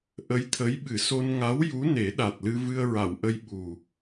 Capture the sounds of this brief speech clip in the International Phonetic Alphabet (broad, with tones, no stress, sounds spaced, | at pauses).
ʔ ə˧˥ j t̪ʰ ə˧˥ j ɓ ɨ˨˩˦ s o˧ n ŋ a˧˥ w j u˧˥ n e˨˩˦ ɗ a˨˩ t̚ l ɨ˧ v ɨ˧ ə̯ ɹ a˨˩˨ w ʔ ə˧ j ɓ u˨˩